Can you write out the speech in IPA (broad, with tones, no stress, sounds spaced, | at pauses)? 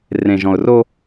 r ẽ˨ ʒ ɔ̃˨ ʊ̯ r o˦